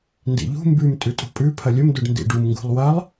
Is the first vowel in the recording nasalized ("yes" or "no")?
no